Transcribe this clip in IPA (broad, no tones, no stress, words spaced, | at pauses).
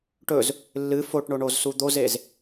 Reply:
ʈɵz | lːɨ foʈɳoɳozsu d̪ozez